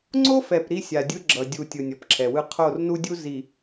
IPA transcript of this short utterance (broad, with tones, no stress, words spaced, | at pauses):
ŋ͡ǀo˦fɛ˨p ɾi˦sʲa˨dʲɯ˦ ɡ͡ǁʌ˨ dʲu˨ tʲɯ˨nʲʌ˨pǁʰɛ˨wɯ˦ qʰo˦˨r nu˦dʲu˦ zi˨